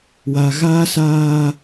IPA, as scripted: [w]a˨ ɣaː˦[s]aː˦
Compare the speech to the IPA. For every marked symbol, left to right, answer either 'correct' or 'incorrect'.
correct, correct

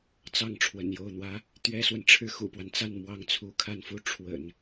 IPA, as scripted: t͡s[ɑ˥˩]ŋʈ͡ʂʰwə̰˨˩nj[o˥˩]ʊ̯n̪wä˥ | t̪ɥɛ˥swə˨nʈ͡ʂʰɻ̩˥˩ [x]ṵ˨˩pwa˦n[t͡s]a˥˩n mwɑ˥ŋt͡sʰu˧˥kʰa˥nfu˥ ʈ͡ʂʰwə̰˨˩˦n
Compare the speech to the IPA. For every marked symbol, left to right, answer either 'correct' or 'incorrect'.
correct, correct, correct, correct

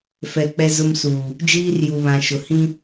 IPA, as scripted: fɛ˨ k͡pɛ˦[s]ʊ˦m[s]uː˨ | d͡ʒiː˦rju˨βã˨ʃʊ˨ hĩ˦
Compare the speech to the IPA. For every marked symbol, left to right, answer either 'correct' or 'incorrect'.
incorrect, correct

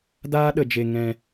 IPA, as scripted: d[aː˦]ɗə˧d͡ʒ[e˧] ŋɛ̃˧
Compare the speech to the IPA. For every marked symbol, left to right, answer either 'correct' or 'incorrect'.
correct, correct

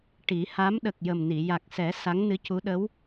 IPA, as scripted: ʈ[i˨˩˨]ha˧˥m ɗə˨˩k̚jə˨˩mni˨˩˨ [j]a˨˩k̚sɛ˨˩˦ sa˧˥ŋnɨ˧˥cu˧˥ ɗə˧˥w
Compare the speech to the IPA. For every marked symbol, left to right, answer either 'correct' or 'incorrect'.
incorrect, correct

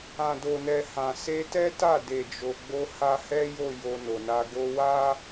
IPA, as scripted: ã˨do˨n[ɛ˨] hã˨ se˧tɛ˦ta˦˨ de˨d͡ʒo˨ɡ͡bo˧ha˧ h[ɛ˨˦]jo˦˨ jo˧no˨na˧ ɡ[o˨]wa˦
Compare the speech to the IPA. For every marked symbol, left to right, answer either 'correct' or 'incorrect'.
correct, incorrect, incorrect

